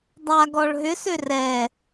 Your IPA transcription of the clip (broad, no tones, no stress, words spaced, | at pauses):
dˤa ɡɔɭɦʏ sørɛ